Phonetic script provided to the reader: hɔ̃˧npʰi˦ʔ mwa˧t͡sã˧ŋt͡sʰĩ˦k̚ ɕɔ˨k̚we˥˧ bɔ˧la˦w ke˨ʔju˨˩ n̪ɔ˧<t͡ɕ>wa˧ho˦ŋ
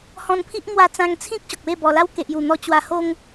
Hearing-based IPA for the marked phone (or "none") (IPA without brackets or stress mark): t͡ɕ